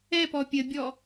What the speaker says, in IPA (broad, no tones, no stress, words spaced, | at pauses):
ɛpɔ pʲəbʲɔ